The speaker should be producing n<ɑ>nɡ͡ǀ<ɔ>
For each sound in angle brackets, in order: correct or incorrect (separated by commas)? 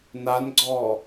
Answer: incorrect, incorrect